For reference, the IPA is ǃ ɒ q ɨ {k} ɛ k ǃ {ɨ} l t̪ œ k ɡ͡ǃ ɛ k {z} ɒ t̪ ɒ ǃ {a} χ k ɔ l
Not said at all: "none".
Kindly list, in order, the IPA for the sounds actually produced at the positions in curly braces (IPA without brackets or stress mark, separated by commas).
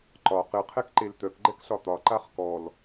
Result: qʰ, e, ɬ, a